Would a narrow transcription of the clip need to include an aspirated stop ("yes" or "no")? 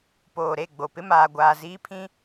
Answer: yes